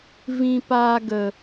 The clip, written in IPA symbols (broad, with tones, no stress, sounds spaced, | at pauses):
v ĩ˧ p aː˧ ɡ ə˨